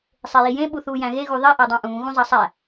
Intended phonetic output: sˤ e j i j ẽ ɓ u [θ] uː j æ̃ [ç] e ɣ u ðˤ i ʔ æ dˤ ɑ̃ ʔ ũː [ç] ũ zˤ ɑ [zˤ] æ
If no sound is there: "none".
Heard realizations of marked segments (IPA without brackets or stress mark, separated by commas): θ, ɣ, ɣ, sˤ